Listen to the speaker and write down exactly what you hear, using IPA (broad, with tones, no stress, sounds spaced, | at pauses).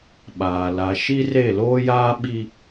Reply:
ɓ aː˨ l a˨ ʃ i˦ r e˦˨ l oː˦ j aː˦ ɓ i˦